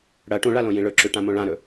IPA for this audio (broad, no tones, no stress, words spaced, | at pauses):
ɽɐ ʈũɭalõjĩ ɭɵǁʉʈãmõ ɭãɾɵ